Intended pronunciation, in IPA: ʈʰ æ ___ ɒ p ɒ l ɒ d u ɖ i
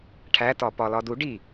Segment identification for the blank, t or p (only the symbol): t